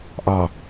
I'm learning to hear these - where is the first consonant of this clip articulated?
throat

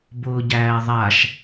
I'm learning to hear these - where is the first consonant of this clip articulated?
lips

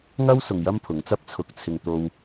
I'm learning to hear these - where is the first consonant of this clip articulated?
velum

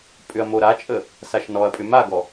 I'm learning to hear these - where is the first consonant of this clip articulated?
lips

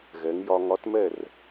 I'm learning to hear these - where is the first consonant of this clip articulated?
velum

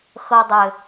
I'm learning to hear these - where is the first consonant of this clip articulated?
velum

